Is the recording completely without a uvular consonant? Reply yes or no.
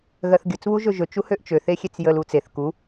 yes